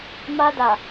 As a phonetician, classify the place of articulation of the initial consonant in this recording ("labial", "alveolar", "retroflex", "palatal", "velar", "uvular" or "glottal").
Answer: labial